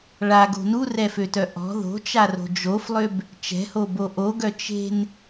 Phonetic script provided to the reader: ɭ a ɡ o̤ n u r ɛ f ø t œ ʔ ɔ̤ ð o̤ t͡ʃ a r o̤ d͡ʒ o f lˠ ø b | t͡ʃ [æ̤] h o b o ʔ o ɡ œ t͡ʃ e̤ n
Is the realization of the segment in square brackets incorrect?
yes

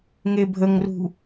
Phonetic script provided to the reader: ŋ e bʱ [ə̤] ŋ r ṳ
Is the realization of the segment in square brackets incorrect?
yes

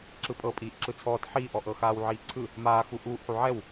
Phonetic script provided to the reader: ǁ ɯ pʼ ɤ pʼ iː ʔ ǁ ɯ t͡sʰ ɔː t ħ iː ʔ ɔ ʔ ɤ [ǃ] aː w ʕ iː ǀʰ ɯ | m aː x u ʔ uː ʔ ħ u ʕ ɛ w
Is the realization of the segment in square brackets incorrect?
yes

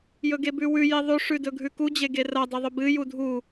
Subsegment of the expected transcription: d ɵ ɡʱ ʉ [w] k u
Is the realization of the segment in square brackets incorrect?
yes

